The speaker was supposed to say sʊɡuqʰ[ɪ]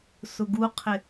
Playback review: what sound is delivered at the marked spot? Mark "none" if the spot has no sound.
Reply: ɪ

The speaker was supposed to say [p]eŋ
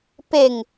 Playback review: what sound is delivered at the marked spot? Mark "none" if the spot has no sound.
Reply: p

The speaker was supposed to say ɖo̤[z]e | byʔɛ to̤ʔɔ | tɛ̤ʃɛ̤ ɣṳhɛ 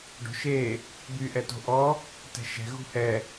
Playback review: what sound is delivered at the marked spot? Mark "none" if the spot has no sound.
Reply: ʃ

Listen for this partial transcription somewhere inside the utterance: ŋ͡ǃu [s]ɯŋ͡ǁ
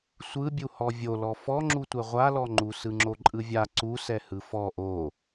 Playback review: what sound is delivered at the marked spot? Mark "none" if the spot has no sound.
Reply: s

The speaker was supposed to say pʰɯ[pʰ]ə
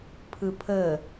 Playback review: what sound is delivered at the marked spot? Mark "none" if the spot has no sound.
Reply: pʰ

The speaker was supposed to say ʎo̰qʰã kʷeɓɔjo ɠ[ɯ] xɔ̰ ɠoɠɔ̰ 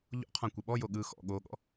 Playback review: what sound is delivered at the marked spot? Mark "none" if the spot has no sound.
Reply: ɯ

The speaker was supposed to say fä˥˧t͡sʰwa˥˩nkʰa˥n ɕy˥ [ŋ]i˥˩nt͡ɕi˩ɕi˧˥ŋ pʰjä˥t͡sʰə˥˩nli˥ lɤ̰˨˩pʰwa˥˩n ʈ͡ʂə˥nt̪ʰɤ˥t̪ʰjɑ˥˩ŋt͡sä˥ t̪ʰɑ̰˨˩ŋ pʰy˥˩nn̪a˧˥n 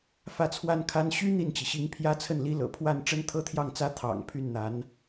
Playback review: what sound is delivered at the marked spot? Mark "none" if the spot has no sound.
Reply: n̪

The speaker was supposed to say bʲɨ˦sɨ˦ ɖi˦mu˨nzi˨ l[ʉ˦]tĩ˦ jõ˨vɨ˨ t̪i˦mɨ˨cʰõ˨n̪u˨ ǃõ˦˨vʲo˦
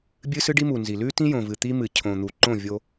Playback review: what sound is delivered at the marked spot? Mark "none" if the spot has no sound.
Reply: ʉ˦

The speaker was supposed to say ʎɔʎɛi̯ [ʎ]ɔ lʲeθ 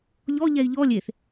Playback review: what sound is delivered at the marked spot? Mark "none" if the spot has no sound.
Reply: ʎ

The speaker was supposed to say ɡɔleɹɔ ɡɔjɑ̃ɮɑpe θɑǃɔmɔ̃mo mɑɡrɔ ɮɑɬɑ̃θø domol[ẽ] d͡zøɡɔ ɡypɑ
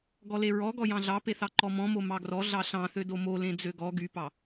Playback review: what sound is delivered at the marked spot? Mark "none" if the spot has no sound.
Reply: ẽ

